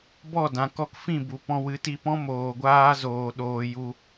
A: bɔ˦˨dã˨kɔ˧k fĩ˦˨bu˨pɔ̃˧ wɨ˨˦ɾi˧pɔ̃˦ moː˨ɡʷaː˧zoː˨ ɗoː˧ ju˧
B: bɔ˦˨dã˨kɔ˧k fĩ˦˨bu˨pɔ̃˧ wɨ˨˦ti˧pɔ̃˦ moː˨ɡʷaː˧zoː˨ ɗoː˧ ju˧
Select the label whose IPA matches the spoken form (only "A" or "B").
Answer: B